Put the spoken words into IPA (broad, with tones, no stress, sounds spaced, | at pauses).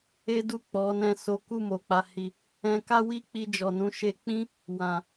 e˦ d u˦˨ k͡p ɔ˨˦ n ɛ̃˦˨ s o˨˦ k u˦˨ m o˨ k͡p a˨ h i˨ | ɛ̃˧ k a˦ w i˦ k͡p i˧ d͡ʒ ɔ˨ n ũ˨˦ ʃ e˧ k͡p ĩ˦ | w ã˨